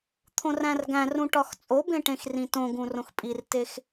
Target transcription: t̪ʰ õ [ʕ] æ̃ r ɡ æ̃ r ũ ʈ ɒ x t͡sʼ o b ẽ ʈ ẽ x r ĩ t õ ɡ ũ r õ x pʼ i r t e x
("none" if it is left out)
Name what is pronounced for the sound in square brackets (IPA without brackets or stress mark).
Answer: r